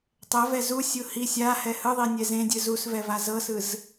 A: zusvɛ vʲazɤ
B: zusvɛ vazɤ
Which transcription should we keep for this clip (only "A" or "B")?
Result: B